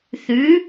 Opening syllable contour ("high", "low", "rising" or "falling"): rising